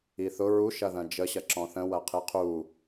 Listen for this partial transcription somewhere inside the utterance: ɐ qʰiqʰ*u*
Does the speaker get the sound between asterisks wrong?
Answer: no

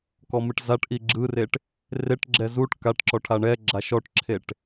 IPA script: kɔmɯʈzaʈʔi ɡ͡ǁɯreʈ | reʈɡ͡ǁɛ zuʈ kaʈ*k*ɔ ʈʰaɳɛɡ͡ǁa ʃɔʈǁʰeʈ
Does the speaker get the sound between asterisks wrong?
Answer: yes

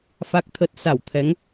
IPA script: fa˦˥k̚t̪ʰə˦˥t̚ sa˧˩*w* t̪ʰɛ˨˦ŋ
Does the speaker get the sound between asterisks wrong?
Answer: no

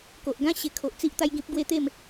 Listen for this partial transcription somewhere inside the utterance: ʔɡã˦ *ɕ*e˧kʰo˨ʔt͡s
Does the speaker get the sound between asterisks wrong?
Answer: no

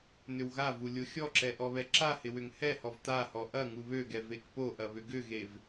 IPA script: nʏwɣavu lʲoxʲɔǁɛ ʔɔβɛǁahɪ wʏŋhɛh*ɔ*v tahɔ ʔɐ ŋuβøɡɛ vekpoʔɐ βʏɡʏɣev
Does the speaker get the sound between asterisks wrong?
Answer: no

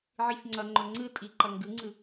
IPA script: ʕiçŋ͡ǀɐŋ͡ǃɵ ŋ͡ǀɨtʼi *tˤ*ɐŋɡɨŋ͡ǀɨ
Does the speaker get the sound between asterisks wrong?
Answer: yes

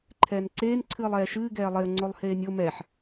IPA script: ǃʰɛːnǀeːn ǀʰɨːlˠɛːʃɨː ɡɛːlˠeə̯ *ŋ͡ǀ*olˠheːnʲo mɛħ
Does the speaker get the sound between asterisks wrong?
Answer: no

